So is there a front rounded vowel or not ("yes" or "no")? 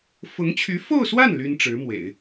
yes